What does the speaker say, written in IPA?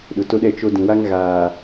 ɗʊ˨to˦ɗɛ˦ t͡ʃo˦ dĩ˨wa˦ŋ ɣaː˨

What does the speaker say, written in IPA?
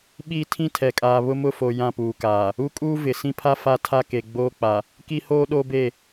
ɓiː˦ tʰĩ˦tʰɛ˨kʼaː˨ βʊ˦mʊ˦˨fo˨ jã˦˨puː˨kaː˨ | u˦kʼuː˦ vɪ˨ sĩ˦pʰa˦ fa˦tʰa˦ke˨ ɡ͡boː˦k͡pa˨ | ki˦hoː˦ ɗo˦be˦˨

